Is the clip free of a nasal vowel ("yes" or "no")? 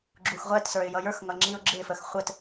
yes